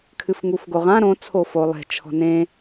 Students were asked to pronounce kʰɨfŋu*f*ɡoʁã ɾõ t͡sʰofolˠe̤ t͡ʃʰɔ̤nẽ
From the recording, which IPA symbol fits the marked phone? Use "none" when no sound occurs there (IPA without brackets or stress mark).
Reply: f